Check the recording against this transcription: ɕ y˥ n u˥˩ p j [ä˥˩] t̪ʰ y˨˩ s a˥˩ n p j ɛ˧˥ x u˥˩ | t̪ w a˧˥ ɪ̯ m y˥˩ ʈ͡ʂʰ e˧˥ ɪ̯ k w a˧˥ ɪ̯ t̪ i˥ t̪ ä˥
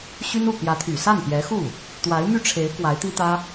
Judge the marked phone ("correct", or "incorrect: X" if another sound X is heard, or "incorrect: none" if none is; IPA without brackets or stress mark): incorrect: ä˧˥